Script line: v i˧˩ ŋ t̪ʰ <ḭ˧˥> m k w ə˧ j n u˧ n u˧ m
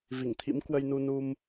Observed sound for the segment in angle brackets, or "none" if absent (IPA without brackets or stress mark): ḭ˧˥